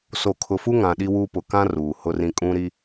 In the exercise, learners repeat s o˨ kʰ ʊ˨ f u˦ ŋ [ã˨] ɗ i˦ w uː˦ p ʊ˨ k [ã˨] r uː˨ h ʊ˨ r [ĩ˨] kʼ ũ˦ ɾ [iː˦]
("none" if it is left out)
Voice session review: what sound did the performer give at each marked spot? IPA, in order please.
ã˨, ã˦, ĩ˨, i˦

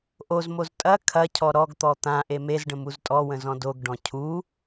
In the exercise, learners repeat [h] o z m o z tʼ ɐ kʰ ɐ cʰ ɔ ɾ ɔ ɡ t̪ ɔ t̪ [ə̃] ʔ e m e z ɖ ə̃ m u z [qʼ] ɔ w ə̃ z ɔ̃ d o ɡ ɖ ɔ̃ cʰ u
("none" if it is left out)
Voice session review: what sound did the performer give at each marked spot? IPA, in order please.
ʔ, ã, tʼ

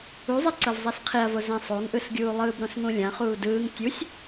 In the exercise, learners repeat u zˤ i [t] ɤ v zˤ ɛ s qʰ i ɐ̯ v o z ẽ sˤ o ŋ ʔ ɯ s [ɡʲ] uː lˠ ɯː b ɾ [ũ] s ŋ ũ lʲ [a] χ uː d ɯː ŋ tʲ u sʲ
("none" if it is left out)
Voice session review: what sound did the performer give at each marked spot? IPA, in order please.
ǀ, ɡʲ, õ, ã

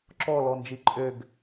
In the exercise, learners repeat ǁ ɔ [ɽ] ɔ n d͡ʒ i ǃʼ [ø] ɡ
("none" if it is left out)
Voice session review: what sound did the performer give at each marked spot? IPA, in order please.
l, ø

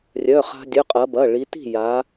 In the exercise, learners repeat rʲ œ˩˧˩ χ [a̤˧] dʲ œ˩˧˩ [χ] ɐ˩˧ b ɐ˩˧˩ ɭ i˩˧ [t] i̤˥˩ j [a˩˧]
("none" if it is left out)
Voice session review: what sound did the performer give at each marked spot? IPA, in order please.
a̤˧, qʼ, t, a˩˧

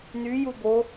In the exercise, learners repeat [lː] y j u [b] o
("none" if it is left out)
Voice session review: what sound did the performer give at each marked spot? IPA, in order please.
n, b

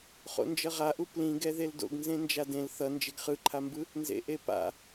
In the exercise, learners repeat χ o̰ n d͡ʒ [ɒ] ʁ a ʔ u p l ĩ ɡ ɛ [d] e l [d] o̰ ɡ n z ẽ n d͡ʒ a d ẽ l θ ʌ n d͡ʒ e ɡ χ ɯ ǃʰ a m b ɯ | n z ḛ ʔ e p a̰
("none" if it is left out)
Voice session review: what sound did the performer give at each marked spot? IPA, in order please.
ʌ, ð, d

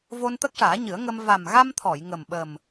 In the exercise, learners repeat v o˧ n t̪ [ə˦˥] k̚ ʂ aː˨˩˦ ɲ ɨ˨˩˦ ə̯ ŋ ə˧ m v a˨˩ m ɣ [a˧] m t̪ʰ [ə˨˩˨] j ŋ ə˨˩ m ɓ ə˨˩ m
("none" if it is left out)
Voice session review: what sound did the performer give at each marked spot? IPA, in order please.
ə˦˥, a˧, ɔ˨˩˨

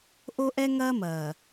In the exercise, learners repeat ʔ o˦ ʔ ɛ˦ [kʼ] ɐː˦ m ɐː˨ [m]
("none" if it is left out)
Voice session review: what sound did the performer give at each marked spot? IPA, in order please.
ŋ, none

